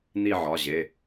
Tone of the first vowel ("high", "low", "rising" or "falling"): falling